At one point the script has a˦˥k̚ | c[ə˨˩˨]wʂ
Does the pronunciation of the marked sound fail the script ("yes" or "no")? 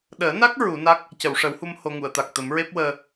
no